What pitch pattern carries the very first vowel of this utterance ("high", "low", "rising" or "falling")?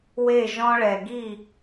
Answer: falling